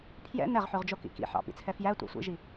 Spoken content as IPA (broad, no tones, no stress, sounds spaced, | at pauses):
pʰ j ɛ̰ n ɛ ʁ ħ ʉ ʁ d͡ʒ o k ḭ k ḭ ħ ɑ̰ p ḭ t͡sʰ ɛ f j æ tʷ ɑ̰ sʷ ḭ ʒ i